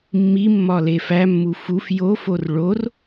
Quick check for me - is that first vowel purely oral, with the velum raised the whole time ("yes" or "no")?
yes